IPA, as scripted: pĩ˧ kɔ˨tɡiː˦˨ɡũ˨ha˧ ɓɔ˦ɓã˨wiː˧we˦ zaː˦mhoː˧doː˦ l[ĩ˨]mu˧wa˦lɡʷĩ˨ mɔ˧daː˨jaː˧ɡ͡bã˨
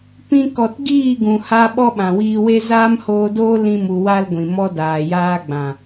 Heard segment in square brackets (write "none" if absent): ĩ˦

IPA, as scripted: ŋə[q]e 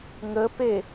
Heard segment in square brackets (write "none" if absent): p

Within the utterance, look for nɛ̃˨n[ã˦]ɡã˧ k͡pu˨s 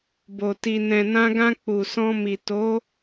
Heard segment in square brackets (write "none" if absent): ã˧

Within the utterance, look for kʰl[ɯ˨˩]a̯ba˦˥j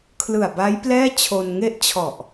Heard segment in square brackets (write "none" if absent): ɯ˨˩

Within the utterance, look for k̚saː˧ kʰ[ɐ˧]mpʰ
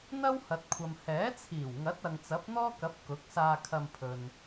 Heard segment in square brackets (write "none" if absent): ɐ˧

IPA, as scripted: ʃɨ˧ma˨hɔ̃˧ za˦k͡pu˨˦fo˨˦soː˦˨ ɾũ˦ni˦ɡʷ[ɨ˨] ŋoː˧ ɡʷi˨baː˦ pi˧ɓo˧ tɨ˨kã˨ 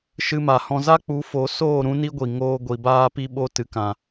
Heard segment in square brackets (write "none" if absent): i˨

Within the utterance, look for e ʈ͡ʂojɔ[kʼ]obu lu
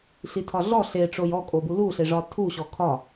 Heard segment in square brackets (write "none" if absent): kʼ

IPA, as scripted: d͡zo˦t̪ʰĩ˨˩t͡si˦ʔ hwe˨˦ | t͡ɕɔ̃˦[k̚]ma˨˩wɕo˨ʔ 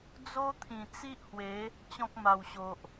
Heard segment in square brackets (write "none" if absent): k̚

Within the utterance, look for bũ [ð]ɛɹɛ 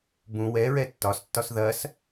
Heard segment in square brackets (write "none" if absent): w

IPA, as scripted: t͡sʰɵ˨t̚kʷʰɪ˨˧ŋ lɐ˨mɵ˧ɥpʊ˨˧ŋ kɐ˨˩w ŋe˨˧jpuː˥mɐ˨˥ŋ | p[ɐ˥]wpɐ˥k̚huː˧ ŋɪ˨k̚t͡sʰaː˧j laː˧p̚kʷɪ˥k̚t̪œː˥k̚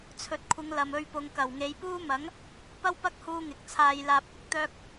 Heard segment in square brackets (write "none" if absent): ɐ˥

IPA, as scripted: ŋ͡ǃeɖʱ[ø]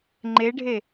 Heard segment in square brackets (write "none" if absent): e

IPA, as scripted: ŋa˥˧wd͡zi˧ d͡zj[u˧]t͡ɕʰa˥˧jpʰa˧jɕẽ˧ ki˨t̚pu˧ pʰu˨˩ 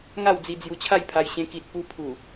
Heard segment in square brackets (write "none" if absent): u˧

